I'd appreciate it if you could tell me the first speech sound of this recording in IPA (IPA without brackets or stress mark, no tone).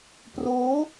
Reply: p